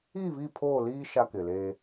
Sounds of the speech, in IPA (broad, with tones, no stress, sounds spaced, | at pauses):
i˦˨ v i˦˨ pʰ oː˦˨ l iː˦ ʃ a˦ k ɪ˨ l eː˦